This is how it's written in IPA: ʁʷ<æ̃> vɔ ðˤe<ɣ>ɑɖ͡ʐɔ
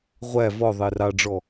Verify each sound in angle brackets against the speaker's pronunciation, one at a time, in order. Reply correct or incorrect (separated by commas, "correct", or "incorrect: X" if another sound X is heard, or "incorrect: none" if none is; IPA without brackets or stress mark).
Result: incorrect: æ, incorrect: r